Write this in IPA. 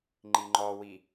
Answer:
ŋ͡ǃ i ŋ͡ǃ ɔ w i

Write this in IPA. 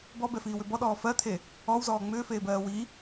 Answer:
b ɔ b ɛ f iː w ʏ b ɔ ɗ ɔː f ɜ t̪ʰ e | ɔ w z ɔː ŋ͡m ʏː f eː b ɜː w i

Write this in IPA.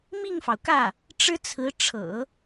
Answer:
m i˥˩ ŋ f ɑ˩ ʊ̯ k ä˥˩ | ʈ͡ʂ ɻ̩˥ t͡sʰ ɹ̩˧˥ ʈ͡ʂʰ ɤ̰˨˩˦

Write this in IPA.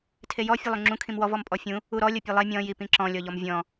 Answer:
tʰ e j ɔ fʲ ɤ lˠ u ŋ͡ǁ ũ kʰ ĩ m w ɔ v ɔ m pʼ ɔ fʲ ũ | u ɾ ɔ lʲ ɤ pʲ ɤ lˠ e mʲ ɔ̃ j i p ĩ ǁ ɔ̃ lʲ ɔ ʎ ɔ m vʲ ɔ̃

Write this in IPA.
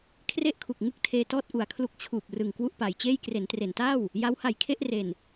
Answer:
kʰ r e˥˩ ʔ kʰ u˨˩ k̚ ŋ ɯ˥˩ k̚ tʰ eː˧ t ɔː˥˩ t̚ ʔ u˨˩ a̯ kʰ l u˦˥ k̚ t͡ɕʰ uː˨˩ p̚ r ɯ˨˩ ŋ k w u˥˩ ʔ p a˩˦ j t͡ɕ eː˥˩ j k r e˩˦ n t r e˩˦ n t aː˥˩ w | j a˦˥ w h a˨˩ j kʰ e˥˩ ʔ r e˨˩ n

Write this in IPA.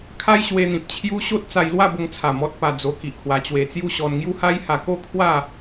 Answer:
kʰ a˦ j ɕ w e˧ n̪ ĩ˨ p̚ t͡ɕʰ j u˦ ɕ o˦ t̚ t͡s a˧ j l w a˥˧ b o˧ ŋ t͡sʰ a˨˩ m ɔ˦ t̚ p a˧ d͡z o˧ k i˨ ʔ h w a˧ t͡ɕ w e˧ t͡s j u˥˧ ɕ ɔ˧ n ŋ j u˦ h a˦ j h a˧ k o˥˧ kʰ w a˥˧

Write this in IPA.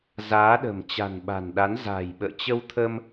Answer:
z aː˨˦ ɗ ə̤˨˩ m t͡ɕ a̤˨˩ n ɓ a̤˨˩ n ɗ a˨˦ n z a̤˨˩ j ɓ ə̰ː˧˨ t͡ɕ ə˧ w t̪ʰ ə˧ m

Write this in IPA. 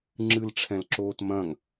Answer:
ŋ͡ǁ ɨ l ʈ͡ʂʰ ɛ̃ l ǁ oː t m ɐ̃ ŋ

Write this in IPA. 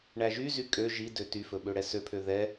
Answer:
ɳ æ ʒ y z y kʼ ø ʒ i d ø t y f ɵ ɓ ø ɽ ɛ s ø pʰ ø ð ɛ

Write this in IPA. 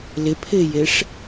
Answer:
l ɪ pʰ ɪː j e ʂ

